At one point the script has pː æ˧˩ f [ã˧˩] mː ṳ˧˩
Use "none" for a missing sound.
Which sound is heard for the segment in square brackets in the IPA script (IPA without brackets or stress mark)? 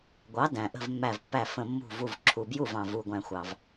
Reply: ə̃˧˩